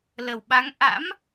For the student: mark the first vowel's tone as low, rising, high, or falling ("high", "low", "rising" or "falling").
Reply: low